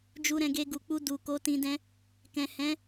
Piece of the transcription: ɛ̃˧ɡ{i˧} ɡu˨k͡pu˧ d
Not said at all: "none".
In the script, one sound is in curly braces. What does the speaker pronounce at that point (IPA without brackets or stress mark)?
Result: e˧